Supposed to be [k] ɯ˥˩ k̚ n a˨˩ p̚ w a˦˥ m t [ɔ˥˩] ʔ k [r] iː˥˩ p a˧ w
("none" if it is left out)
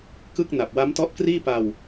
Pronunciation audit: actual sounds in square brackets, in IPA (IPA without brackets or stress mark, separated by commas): k, ɔ˦˥, r